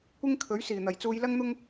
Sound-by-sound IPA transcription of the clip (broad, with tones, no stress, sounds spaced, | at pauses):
kʷ ɪ˥ ŋ kʰ ɵ˨˥ ɥ s iː˨˩ n̪ ɐ˨˩ j t͡s uː˧ j l ɐ˥ ŋ n̪ ʊ˥ ŋ